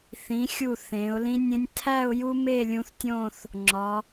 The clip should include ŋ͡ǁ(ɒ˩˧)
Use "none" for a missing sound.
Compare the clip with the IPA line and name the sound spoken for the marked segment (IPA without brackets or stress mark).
ɒ˩˧